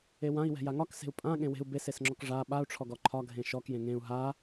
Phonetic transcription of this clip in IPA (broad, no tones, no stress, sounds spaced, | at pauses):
e w ã i̯ w ɛ̤ j a ŋ ɒ k s e̤ u̯ pʼ ã ɠ ẽ w e̤ u̯ b e s e s ŋ͡ǁ ɔ k ʐ a ɓ a u̯ ʈ͡ʂʰ ɔ ɡ ɔ ǃʰ ɒ ɡʱ ẽ ʃ ɔ k j ẽ ŋ ẽ u̯ ɦ a